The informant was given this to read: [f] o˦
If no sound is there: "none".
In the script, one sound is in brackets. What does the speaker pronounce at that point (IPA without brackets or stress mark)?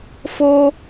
f